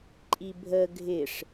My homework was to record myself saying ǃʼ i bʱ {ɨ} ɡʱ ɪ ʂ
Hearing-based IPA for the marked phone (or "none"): ə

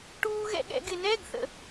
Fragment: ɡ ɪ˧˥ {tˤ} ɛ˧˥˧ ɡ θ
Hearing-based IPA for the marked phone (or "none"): n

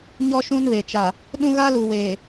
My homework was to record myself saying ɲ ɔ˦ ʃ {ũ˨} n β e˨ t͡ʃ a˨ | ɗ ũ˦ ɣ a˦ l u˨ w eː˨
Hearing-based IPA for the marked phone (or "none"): ũ˦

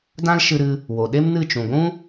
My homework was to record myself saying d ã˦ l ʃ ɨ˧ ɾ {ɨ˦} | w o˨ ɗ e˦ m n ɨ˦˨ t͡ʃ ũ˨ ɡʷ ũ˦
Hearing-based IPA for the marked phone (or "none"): ɨ˧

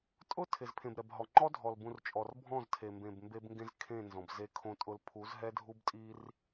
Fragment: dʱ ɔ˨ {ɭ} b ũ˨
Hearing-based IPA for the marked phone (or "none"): l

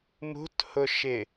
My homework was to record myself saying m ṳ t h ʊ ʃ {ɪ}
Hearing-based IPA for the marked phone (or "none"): ɪ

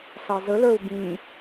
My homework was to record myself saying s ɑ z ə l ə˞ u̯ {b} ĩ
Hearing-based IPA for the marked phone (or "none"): b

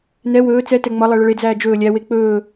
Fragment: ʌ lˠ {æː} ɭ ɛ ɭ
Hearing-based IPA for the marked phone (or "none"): æ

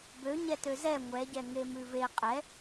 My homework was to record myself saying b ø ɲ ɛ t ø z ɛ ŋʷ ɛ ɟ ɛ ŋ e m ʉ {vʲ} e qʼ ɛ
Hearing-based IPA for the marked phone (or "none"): v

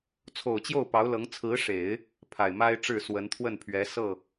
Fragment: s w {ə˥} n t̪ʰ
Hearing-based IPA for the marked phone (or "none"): ə˧˥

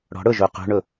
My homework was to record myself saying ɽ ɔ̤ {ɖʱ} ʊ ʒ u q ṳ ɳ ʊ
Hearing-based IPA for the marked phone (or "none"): ɽ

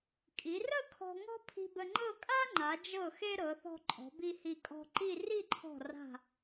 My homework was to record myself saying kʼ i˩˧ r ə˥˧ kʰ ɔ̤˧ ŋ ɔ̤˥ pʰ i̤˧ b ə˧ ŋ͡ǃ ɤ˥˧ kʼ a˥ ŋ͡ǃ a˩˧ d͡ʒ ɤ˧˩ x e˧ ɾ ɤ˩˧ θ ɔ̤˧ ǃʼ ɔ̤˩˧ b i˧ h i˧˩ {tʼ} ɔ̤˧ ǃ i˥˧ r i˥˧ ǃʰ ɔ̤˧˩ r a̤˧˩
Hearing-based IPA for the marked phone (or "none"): kʼ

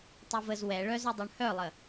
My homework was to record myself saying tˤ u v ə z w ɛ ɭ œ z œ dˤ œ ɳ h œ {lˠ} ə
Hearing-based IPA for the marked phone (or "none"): lˠ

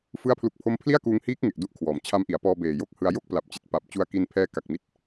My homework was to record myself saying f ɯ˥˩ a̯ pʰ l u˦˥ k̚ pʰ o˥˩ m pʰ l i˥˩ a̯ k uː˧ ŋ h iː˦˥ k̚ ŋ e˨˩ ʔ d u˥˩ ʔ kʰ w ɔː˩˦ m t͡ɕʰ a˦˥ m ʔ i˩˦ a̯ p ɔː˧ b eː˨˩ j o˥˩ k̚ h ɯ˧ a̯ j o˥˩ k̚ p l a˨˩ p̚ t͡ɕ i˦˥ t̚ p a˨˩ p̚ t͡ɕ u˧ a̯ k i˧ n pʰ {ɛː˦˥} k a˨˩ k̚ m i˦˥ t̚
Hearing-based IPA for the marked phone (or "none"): ɛː˦˥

